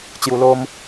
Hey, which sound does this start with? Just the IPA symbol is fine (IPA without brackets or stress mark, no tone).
t͡ɕ